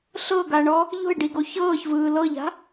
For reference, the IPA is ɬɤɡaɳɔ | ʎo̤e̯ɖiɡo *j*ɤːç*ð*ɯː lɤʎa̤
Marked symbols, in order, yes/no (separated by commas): no, no